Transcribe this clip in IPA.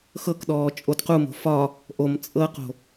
x ɤ k ɗ ɔː t͡ʃʼ o d q u m o̤ f ɒ | ʔ o m t͡sʼ ɤ q o̤

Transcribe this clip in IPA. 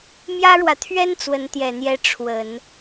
m j ä˥ ɻ w ä˨ t̪ʰ ɥ ɛ˥ n t͡s w ə˧˥ n t̪ j ɛ˨˩ n̪ j ɛ˧˥ ʈ͡ʂʰ w ə˨˩˦ n

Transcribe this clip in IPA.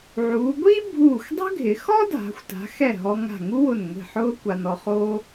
ʕ uː˩˧ ɡʷ iː˥ bʱ uː˧˩ xʷ dˤ ɛ̤˥ ɡʱ ɪ˩˧ x ɔ˥ dʱ a̤˩˧ xʷ t a̤˩˧ x ɛ˧˩ ɦ ɔ˧ ŋ a̤˧˩ ŋ u˥ w ʊ˧˩ n ŋʷ i̤˧˩ ħ ʊː˥ kʷ a˧ n ɔ˧ χ oː˥

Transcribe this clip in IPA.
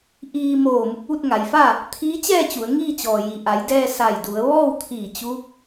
ʔ iː˧ m oː˧˩ m u˧ k̚ ʋ u˥˨ t̚ ŋ a˩˧ j f a˥˨ | t̪ʰ iː˧˥ t͡ɕ ɛː˥˨ t͡ɕ u˩˧ ə̯ ŋ iː˥˨ t͡ɕ ɔː˩ j i˩ ʔ a˩˧ j d ɛː˧ s a˧˩ j d u˩˧ ə̯ ʋ ɔː˥˨ w t̪ʰ iː˧˩ t͡ɕ u˧˥ k̚

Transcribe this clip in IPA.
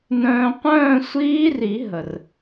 n œ̃ː˧ qʷ œ̃ː˥˧ sʷ iː˦˥ r i˨˩˦ ɦ ə˩ r

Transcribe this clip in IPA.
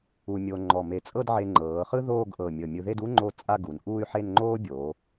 u˧ mʲ o˧ ŋ͡ǃ ɔ˧˩ m e˧˩ t͡sʼ ɤ˥˧ d ʕ e˧ ŋ͡ǃ ɤː˩˧ χ ɯ˥ ð oː˥˧ ɡ ʔ ɤ˧˩ mʲ ɤ˧˩ mʲ ɯ˧ ð e˥˧ d u˥ ŋ͡ǃ o˥˧ t͡sʼ a˥˧ ɡ u˩˧ n ʔ uː˥˧ y̯ ħ e˥˧ n ŋ͡ǃ oː˥ bʲ oː˩˧

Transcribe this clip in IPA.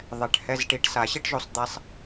ðˤ ɛ˨˩ ʈ h ɛ˧˥˧ z ʈ i˧ ʈ s a˨˩˦ ɕ i˥ ʈ ʒ o˧ sˤ d̪ ɛ˧ sˤ

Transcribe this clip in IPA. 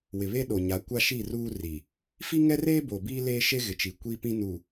w ɪ˨ β e˦ ɗ o˨ ɲ a˨˦ kʷ a˦ ʃ i˦˨ r uː˦ r i˨ | f i˦ ŋ ɛ˦ r eː˦ b o˨ b iː˦ l eː˦ ʃ e˦ ɣ ɪ˨ t͡ʃ i˨ kʷ i˦ p ĩ˦ n u˨

